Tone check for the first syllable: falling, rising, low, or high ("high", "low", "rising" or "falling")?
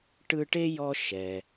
high